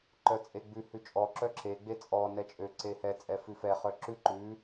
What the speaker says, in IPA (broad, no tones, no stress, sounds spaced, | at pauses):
ǃ œ t͡sʼ e ɡ͡b ʉ h ʉ t͡ʃʼ ɔ ǁ œ ǁ e ɡ͡b e t͡sʼ ɔ n ɛ t͡ʃʼ ø ǀ e h ɛ t͡sʼ ɛ f ʉ f ɛ χ œ ǁ ʉ ǃ ʉ